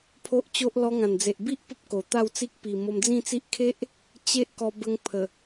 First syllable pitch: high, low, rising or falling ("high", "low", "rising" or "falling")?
high